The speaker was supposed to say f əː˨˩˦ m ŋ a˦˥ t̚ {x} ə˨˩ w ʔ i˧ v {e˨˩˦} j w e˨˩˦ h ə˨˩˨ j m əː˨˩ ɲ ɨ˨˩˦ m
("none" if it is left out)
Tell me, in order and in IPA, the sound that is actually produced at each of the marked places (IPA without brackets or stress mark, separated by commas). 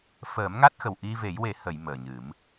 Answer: x, e˨˩˦